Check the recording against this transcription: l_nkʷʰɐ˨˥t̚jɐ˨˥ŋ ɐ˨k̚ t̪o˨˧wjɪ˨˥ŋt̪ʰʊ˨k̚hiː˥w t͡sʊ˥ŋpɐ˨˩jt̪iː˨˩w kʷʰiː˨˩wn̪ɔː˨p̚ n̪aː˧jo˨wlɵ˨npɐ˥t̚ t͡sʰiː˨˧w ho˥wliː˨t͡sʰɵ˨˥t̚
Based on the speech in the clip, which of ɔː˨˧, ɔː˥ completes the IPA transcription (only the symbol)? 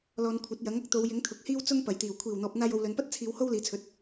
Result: ɔː˨˧